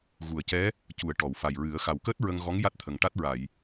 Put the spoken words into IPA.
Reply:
ɣ u˨˩˨ ə̯ c ɛ˧˥ | c u˨˩˨ ə̯ ʈ ɔ˨˩˨ w f a˨˩ j ɹ ɨ˨˩˦ ə̯ x a˨˩ w k əː˦˥ t̚ ɹ ə˧ ŋ ɣ ɔ˧˥ ŋ j a˦˥ t̚ t̪ʰ ə˨˩ ŋ ʈ a˦˥ t̚ ɹ a˨˩˨ j

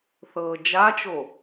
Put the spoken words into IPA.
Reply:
θ ɤː d͡ʒ a t͡ʃ o

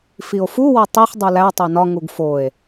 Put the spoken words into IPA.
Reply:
f i o̯ f u w ɒ tˤ i χ dˤ u l æ tˤ o n ɒ ŋ u ɡ f o e̯

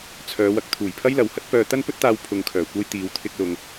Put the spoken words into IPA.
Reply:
t͡sʰ œː˨˧ w ɐ˨ k̚ t̪ʰ uː˨˩ j pʰ ɐ˥ j l ɐ˨ w h ɐ˥ t̚ p œː˧ t̪ ɐ˥ n p ɵ˥ t̚ t̪ aː˧ w pʰ ʊ˧ ŋ kʰ œː˨˩ kʷ ɐ˥ j t̪ iː˨˧ w t̪ʰ ɪ˧ k̚ l ʊ˨ ŋ

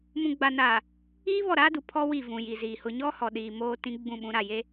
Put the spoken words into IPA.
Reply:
m ũ˨ ɡ͡b a˨ n aː˨ | iː˦ β ɔ˦˨ ɾ aː˦ d u˨ pʰ ɔ˦ w i˦˨ v ũ˨ j i˨ z iː˨ h ʊ˨ ɲ ɔ˦ h ɔ˨ ɗ iː˨ m oː˦ t ĩ˦ ɡ͡b ũ˦˨ ɓ ũ˨˦ ɾ a˦˨ j e˦

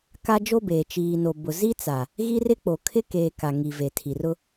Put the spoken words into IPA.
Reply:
k a˦ d͡ʒ o˦ b eː˨ t͡ʃ iː˨ n o˨ b ʊ˨ z i˦ t͡s a˨ | ɣ i˦ r ɪ˦ k͡p o˨ kʰ ɪ˦ k eː˨ k a˨ ŋ i˨ v e˨ tʰ i˨ r ʊ˦

